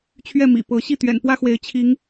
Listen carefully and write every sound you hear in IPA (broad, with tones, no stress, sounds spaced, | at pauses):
t͡ɕʰ ɥ ɛ˥˨ m ḭ˨˩ p ɤ˨˦ ɕ i˥˨ t̪ ɥ ɛ̰˨˩ n p w ä˦ x w e˨˦ ɪ̯ t͡ɕʰ i˨˦ ŋ